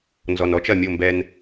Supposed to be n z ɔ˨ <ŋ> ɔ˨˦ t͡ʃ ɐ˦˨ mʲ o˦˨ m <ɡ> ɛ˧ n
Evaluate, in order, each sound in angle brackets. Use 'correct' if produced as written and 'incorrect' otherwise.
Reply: incorrect: n, incorrect: b

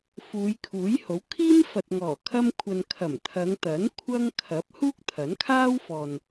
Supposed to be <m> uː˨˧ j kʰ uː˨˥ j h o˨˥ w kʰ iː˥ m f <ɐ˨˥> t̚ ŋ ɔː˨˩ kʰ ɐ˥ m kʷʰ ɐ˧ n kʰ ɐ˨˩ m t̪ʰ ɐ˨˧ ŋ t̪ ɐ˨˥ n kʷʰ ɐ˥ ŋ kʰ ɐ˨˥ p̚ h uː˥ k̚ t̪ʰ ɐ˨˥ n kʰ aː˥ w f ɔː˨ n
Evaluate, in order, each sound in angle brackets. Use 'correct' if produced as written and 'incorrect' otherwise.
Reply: incorrect: f, incorrect: ɐ˨

